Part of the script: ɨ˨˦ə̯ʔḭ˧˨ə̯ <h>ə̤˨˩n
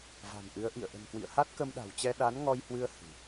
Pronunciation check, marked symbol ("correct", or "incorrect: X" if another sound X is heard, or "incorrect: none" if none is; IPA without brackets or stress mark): incorrect: ʔ